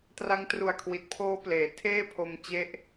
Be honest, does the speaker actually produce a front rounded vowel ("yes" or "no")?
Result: no